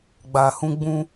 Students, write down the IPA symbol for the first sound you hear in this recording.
ɡ͡b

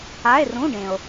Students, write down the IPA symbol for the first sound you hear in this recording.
a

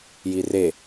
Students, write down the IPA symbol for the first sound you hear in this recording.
j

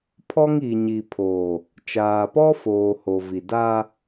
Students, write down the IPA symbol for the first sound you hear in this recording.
pʰ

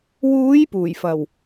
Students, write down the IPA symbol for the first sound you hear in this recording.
w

